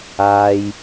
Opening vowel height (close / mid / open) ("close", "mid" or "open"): open